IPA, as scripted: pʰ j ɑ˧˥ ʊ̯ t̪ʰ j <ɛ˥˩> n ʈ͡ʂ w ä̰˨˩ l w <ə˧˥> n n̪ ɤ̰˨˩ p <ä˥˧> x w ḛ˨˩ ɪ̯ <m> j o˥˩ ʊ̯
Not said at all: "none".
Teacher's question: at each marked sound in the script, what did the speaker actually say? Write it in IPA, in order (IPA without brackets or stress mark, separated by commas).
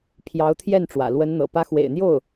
ɛ˥˩, ə˧˥, ä˧˥, n̪